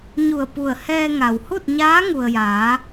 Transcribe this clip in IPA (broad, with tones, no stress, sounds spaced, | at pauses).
ɲ u˧˩ ə̯ p u˧˩ ə̯ h ɛː˧ ŋ a˩ w h u˥˨ t̚ ɲ aː˧˥ ŋ u˩ ə̯ j aː˩˧